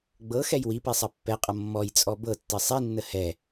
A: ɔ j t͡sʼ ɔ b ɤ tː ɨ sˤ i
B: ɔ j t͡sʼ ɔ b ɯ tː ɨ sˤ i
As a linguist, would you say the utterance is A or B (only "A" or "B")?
A